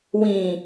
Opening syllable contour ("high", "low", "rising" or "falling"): high